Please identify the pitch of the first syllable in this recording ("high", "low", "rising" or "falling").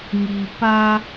low